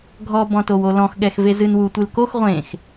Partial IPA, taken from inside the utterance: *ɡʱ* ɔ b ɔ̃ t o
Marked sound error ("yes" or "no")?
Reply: no